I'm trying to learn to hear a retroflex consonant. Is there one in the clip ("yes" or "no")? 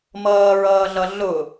no